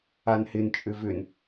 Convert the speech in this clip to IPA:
a n h ɪ n t͡ʃʼ ʏ v ʏ n

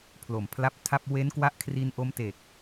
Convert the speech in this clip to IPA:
pʰ l o˨˩ m pʰ l a˦˥ p̚ tʰ a˥˩ p̚ w e˦˥ n k w a˦˥ ʔ kʰ r i˧ n ʔ o˦˥ m t e˨˩ k̚

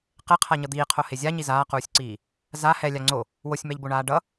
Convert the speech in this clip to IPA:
q e qʰ a ɲ ʌ d̪ iː qʰ o h e zʲ a ɲ i z aː q uː sʲ ǀ iː | z a h ɛ lʲ a ŋ͡ǀ o | w o sʲ m ɛ ʎ b o ɳ aː ɖ ʌ

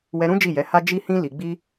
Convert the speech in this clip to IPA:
w ɛ˧ ɾ ũ˦ d͡ʒ i˦˨ j ɛ˨˦ h a˦ d͡ʒ i˦ h ĩ˦ l i˧ ɡ͡b i˦

